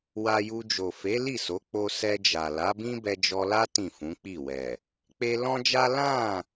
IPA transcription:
w a˧ j u˧ d͡ʒ o˨ f e˨˦ l i˦˨ s o˨˦ k͡p o˦ s ɛ˧ d͡ʒ a˨ l a˨˦ b ĩ˦ b ɛ˧ d͡ʒ ɔ˧ l a˦ t ĩ˦˨ f ũ˨˦ k͡p i˦˨ w ɛ˨ | k͡p e˧ l ɔ̃˦ d͡ʒ a˦ l ã˦˨

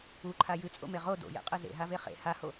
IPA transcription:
u ǃʰ a j ɨ t͡sʼ o̰ m e ʁ o d o̰ j ḛ qʼ ɨ z ḛ ɦ a v e χ ḛ h a h o

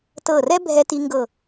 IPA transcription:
t ɤ˧˩ r ɛ˥ bʱ ɛ˧ t i˧ ŋ ɡ ɤ˧˩

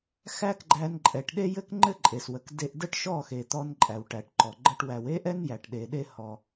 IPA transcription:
x æ˦ k ɡ͡ǃ æ˧ n ǃʼ ɛ˨ ʈ ɗ e˦ j ɘ˦ k ŋ͡ǃ ɘ˦ ǃʼ e˨ s w ə˨ k d e˧ ʔ d ə˦ ʈ ʃ ɔ˦˨ x e˨ t̪ ɔ˧ n ǃʼ æ˨ w ʈ æ˨ ʈ ǃ ɔ˨ ɡ͡ǃ ə˦ ʈ w æ˧ w e˦ ʔ ɛ˦ n j æ˨ ʈ ɗ e˨ ɗ e˦ h ɔ˧

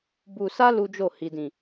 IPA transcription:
b u˧ s a˦ l u˦ d͡ʒ o˦˨ h i˨ d ĩ˨

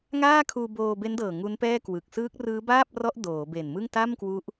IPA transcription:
ŋ aː˥˩ kʰ uː˧ b oː˧ b e˦˥ n d ɤː˨˩ ŋ u˦˥ n p ɛː˥˩ k w ɯ˨˩ k̚ s ɯː˦˥ k̚ r ɯː˦˥ b aː˥˩ p̚ r ɔ˦˥ ʔ d oː˩˦ b e˨˩ n m ɯ˥˩ ŋ t a˥˩ m k w u˦˥ ʔ

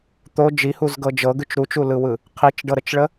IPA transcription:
t̪ o d͡ʒ i h u z ɡ ɤ d͡ʒ ɤ ɡ ʉ t͡ʃ ɾ u t͡ʃ u l ɯ w ɯ | qʰ i t͡ʃ ɖ ɤ ɾ ə t͡ʃ ɭ ə

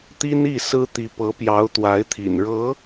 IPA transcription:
t̪ i˥ n i˥˩ s ɹ̩˥ t̪ i˧˥ p ɤ˧˥ p j ɑ˧˥ ʊ̯ t̪ w a˧˥ ɪ̯ t̪ʰ ḭ˨˩ n ɻ ɤ˧˥

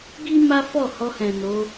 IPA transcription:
ɡ i˦ m a˦ f ɔ˦˨ h ɔ˧ h ɛ̃˨ n o˨˦

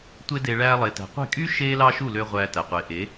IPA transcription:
tʷ e˦ d e˧ ɭ æː˧ lˠ e˨ t æ̤˨ qʷ e̤˦˨ kʼ y˦ ʃ eː˦ l ɑ˦ ʃ u˦˨ l ø˧ ʁʷ æː˧ t æ˨ qʷ e˨˦ ʔ e˨˦

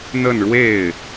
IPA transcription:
n̪ ə˥˧ n ɻ w e˥˩ ɪ̯

